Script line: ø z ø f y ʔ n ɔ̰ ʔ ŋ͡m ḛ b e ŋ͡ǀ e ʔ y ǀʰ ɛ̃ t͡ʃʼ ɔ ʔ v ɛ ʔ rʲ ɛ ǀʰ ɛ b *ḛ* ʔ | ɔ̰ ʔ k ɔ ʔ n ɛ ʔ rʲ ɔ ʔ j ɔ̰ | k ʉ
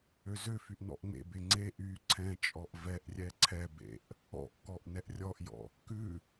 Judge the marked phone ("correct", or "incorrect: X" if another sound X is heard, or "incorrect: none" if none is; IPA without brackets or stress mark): correct